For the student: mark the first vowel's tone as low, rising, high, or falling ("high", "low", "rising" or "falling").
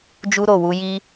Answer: high